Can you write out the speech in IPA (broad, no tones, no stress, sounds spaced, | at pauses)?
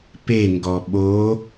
p e ŋ ɡ ɔ ɓ o